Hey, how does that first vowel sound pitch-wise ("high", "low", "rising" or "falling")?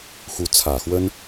rising